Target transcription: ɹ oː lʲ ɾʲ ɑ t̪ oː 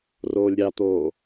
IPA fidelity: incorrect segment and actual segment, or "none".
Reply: ɹ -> r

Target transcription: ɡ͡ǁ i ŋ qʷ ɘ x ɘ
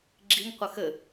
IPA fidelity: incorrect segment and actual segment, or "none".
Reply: none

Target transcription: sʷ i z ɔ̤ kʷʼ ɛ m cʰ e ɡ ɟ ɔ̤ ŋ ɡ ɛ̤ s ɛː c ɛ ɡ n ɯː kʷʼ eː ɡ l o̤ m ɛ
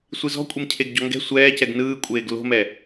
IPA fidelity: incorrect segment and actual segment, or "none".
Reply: s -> sʷ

